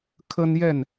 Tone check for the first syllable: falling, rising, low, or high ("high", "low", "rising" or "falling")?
high